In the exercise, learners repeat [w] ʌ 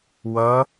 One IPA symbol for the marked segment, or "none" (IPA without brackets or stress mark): w